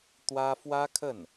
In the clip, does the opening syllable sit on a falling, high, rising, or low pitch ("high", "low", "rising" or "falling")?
high